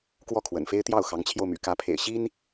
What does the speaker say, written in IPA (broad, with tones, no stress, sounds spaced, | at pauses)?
k w ɔ˥˩ kʰ w ə̰˨˩ n f e˥ ɪ̯ t̪ j ɑ˥˩ ʊ̯ x ɑ˧˥ ŋ t͡ɕʰ j o˧ ʊ̯ m y̰˨˩ k ä˧˥ pʰ ḛ˨˩ ɪ̯ ɕ i˥ n